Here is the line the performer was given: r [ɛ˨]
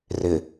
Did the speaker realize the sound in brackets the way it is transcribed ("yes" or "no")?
no